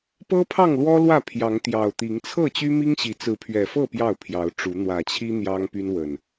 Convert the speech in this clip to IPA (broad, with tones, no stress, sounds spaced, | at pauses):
p ɤ˦ pʰ ɑ˥˨ ŋ l w ɔ˦ l w ä˥˨ pʰ j ɑ˨˦ ŋ t̪ j ɑ˨˩ ʊ̯ t̪ i˨˦ ŋ t͡sʰ ɤ˥˨ t͡ɕ y˦ m i˦ ŋ ɕ i˨˦ t͡s ɹ̩˨˦ pʰ ɥ ɛ˨˩ f ɤ˥˨ p j ɑ˥˨ ʊ̯ pʰ j ɑ˨˦ ʊ̯ ʈ͡ʂ u˨˦ n̪ w ä˨˩ t͡ɕʰ i˦ n̪ j ɑ˦ ŋ p y˦ n w ə˨˩ n